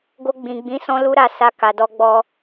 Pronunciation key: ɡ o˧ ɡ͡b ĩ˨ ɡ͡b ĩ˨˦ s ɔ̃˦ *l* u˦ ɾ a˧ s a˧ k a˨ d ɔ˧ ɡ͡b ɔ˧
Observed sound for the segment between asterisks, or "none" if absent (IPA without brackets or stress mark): l